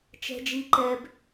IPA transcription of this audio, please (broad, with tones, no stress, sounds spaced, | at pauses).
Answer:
t͡ʃ ɛ̤˦ d͡ʒ i˦ ǃ ɛ˦ b